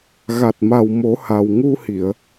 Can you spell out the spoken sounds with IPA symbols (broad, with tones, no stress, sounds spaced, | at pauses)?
ɣ a˨˩ t̚ m a˨˩ w m o˨˩˦ h a˨˩ w ŋ u˧ h i˨˩˨ ə̯